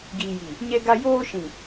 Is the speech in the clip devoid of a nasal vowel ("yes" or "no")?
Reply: no